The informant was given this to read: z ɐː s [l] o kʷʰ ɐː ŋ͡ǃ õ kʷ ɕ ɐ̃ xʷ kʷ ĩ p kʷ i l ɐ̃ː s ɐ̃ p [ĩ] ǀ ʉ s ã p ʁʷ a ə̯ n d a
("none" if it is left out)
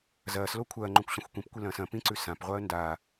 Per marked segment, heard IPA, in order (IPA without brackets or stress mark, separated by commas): l, ĩ